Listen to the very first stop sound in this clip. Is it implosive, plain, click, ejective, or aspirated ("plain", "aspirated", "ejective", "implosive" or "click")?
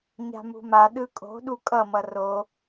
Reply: implosive